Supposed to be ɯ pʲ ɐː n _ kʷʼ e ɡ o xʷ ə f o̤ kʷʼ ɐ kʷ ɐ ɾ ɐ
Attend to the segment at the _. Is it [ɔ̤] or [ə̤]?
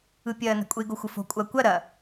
ə̤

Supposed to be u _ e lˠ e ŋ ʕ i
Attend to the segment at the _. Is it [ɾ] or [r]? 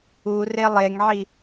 r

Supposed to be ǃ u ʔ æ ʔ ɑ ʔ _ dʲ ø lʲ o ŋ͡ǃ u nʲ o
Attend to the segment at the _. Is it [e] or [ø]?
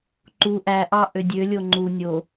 ø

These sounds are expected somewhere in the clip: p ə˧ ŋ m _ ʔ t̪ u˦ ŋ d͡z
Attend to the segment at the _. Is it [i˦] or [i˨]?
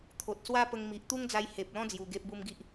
i˨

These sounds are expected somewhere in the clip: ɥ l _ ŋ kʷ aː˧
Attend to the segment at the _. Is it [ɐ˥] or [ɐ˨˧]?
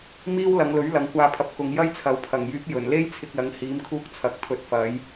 ɐ˨˧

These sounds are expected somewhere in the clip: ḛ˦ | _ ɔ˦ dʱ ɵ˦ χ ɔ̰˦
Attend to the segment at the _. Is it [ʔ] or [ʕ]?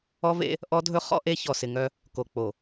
ʔ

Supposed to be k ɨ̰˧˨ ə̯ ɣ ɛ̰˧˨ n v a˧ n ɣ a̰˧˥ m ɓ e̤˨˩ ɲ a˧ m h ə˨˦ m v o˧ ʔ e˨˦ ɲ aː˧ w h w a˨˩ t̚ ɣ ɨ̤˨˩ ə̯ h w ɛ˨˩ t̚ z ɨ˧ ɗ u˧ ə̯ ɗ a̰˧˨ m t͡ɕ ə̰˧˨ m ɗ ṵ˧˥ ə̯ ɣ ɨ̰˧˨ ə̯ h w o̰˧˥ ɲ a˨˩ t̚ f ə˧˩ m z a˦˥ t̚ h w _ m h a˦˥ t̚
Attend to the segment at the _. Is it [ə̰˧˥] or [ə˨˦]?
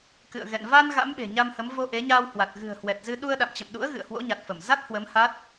ə˨˦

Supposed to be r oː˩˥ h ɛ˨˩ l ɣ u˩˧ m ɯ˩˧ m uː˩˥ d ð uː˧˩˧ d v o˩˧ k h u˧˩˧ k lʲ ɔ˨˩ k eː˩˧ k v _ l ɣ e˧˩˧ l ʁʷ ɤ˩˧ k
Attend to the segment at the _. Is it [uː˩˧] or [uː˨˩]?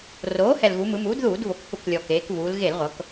uː˩˧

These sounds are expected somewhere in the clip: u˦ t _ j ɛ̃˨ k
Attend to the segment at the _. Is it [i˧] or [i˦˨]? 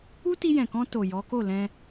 i˧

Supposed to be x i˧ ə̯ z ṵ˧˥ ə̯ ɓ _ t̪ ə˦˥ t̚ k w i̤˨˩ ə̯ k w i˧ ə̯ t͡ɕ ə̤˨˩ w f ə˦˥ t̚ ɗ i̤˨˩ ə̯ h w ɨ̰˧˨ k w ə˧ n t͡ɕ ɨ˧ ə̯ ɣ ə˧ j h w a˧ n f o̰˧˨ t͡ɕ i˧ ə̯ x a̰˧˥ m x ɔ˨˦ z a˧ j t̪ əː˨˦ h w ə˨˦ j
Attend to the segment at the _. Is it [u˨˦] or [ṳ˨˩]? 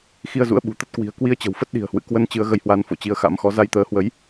ṳ˨˩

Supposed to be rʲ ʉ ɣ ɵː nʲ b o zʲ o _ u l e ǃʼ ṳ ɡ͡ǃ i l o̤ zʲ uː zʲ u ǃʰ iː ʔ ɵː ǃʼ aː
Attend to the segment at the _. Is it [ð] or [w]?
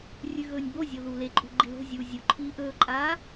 ð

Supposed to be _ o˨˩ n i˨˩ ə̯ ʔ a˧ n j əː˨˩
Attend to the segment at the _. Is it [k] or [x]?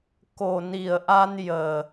k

